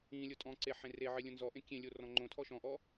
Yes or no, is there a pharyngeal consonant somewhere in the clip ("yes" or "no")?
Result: yes